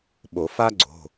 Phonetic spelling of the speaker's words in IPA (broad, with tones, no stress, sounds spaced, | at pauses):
ɓ o˨˩˦ f a˥ ɡ͡ǀ o̤˩˧˩